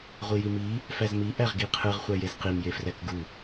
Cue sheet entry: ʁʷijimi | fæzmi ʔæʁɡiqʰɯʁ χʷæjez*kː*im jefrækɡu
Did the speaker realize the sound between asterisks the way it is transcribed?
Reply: no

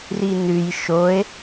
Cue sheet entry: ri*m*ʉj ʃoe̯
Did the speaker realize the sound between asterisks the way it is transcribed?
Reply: no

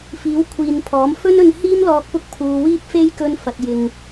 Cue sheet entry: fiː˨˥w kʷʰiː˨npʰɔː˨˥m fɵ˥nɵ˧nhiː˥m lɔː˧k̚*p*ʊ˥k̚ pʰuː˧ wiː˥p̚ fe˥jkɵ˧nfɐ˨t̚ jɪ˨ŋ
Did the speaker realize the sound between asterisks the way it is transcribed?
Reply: yes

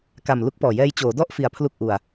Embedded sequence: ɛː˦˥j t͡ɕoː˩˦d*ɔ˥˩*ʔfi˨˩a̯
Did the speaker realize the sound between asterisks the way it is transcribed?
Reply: yes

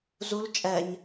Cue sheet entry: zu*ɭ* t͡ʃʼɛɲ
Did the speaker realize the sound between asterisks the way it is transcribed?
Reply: no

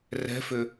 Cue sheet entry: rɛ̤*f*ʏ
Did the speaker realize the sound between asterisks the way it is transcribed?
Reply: yes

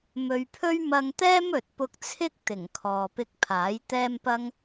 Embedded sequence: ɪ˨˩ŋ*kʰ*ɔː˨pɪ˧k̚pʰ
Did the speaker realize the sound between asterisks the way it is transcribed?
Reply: yes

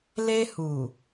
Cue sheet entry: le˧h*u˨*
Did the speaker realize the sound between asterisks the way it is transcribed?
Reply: yes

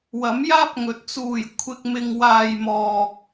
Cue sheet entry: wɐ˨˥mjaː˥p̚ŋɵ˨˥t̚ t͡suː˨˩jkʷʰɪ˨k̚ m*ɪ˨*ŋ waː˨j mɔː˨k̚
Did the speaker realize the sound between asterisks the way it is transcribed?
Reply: yes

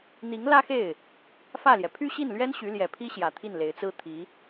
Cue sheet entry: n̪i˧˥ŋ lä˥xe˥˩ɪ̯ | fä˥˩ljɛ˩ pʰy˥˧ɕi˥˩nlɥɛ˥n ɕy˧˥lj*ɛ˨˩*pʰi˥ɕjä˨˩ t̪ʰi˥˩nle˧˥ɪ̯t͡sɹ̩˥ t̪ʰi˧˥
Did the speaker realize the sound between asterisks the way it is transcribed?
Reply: yes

